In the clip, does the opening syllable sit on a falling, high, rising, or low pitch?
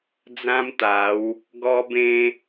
high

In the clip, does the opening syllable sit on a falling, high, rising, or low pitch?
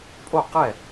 falling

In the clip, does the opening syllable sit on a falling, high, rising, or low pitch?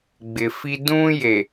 low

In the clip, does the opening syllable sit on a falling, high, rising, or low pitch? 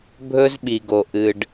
high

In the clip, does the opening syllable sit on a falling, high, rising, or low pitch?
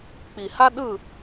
low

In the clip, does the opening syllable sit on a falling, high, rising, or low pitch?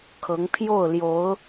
rising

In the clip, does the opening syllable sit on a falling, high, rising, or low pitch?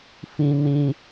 high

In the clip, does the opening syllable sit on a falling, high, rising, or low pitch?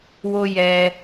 high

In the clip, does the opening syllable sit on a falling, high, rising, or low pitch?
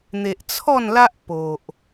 low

